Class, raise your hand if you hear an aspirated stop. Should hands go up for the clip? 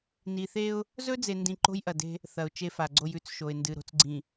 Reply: no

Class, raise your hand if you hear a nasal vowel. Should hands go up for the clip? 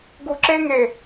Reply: no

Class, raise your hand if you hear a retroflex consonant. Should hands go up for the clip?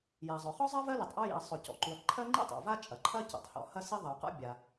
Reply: no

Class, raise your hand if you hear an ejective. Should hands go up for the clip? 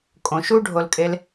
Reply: yes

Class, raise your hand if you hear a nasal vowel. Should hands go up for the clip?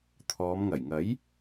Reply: no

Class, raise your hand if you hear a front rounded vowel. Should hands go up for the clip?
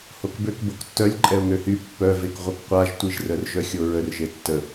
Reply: yes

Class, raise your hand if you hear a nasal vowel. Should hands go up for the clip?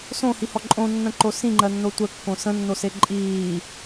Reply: yes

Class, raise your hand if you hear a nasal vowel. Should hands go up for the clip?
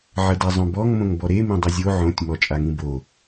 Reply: yes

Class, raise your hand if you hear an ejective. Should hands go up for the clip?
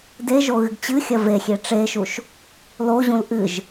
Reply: no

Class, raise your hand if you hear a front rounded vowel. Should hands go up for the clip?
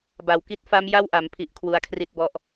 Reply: no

